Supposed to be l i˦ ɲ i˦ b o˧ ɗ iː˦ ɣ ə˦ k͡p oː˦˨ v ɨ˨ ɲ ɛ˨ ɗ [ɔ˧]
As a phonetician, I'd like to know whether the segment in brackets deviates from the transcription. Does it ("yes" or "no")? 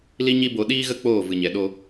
yes